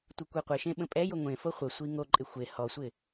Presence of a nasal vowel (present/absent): present